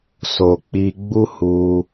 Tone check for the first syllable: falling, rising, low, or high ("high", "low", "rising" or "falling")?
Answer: low